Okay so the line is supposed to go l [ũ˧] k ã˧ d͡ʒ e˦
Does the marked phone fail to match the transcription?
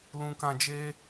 no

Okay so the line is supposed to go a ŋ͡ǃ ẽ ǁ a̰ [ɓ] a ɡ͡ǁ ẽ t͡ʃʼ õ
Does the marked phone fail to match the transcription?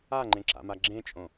yes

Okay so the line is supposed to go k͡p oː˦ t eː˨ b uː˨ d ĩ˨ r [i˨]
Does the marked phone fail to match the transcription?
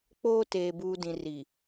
no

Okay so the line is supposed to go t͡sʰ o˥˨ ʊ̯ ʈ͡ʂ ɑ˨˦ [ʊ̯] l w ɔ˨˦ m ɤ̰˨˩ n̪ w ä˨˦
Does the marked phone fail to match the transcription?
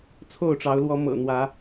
no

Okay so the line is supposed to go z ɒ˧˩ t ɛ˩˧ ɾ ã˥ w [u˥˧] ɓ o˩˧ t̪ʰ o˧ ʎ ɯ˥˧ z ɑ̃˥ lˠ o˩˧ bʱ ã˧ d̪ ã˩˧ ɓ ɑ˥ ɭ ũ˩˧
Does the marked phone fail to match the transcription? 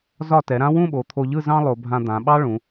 yes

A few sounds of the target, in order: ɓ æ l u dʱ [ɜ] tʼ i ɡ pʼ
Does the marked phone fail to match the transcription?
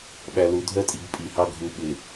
no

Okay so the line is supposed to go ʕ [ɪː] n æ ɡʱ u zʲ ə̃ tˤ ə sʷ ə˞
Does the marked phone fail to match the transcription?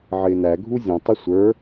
no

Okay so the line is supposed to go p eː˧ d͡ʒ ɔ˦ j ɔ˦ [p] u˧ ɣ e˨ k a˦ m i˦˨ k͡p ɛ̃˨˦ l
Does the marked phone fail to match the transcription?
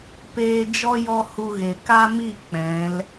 yes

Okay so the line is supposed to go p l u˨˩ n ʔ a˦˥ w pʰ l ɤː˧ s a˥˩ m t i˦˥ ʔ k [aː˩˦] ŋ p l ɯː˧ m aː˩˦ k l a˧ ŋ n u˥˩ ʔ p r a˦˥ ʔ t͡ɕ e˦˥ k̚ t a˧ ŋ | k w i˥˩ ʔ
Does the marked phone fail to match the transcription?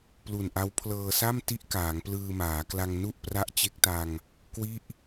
no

